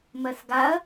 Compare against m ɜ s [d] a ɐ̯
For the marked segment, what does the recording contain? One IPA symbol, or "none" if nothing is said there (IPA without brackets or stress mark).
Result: ɡ